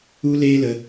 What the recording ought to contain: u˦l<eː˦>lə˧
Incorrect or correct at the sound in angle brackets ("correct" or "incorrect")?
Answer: correct